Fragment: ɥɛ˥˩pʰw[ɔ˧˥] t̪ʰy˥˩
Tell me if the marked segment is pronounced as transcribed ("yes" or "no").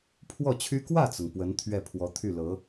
yes